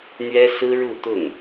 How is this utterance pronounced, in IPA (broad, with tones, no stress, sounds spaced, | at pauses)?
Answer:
n̪ ɥ ɛ˥ s ɹ̩˥ ɻ u˥˧ t̪ ʊ˥˩ ŋ